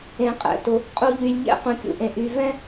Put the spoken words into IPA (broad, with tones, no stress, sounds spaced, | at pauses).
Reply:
ẽ˩ qʼ ɛ̰˩ t ʊ˩ | qʼ u˨ ʎ y˩ lʲ ʎ ɛ̰˦ q ũ˩ kʲ ṵ˩ ʔ ẽ˩ ʔ y˩ v ɛ̃˦